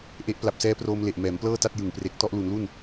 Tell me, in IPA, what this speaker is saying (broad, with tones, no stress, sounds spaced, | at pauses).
ʔ e˦˥ ʔ p l a˨˩ p̚ s ɛː˦˥ p r oː˧ m l e˨˩ ʔ m ɛː˩˦ m p l ɤː˥˩ t a˥˩ t̚ j ɯ˨˩ ŋ p r e˨˩ k̚ t ɔ˥˩ ʔ l u˩˦ n l u˥˩ n